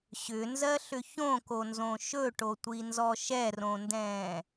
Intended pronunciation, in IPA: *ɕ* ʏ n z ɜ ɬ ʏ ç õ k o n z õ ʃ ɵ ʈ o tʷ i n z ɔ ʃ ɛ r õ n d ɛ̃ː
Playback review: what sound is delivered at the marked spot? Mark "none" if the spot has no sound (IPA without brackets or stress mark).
ɕ